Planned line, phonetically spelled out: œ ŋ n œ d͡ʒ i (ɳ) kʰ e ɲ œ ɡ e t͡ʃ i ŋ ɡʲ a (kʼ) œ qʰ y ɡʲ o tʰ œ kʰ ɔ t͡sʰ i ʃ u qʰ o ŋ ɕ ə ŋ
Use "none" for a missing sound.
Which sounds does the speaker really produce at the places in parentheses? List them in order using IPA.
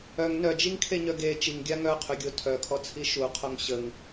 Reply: ŋ, ŋ

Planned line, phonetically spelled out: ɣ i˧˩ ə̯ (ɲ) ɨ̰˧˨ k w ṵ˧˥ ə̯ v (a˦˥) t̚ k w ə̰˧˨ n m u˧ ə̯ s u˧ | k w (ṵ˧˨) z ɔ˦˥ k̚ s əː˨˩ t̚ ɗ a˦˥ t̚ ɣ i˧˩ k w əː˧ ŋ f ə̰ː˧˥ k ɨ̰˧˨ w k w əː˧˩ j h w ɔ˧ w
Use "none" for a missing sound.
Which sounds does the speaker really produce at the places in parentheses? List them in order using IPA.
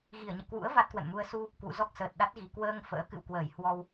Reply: ɲ, a˦˥, ṵ˧˨

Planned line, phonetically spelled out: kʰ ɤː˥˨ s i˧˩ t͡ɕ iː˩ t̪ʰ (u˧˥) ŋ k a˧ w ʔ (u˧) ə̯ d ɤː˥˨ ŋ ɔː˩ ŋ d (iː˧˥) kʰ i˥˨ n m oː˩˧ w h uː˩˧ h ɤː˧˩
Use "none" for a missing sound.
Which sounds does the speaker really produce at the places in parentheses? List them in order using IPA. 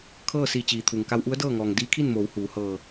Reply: u˩, u˧˥, iː˧˥

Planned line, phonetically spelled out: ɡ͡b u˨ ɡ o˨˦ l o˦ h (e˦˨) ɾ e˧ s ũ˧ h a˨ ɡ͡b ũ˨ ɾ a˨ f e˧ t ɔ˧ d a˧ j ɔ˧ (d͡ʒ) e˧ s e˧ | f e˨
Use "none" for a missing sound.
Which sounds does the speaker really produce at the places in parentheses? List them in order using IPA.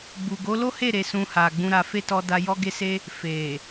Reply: e˦˨, ɡ

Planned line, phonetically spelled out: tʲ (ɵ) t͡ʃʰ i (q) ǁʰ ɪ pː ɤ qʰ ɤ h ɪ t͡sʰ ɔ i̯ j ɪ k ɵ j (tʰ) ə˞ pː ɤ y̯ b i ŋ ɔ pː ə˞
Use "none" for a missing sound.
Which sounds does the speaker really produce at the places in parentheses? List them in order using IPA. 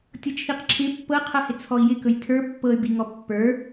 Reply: ɤ, q, tʰ

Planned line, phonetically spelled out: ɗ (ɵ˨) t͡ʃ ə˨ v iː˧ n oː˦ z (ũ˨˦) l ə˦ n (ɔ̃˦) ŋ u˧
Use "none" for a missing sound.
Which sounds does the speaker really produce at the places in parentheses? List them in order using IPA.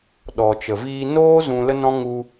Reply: ɔ˨, ũ˧, ɔ̃˦

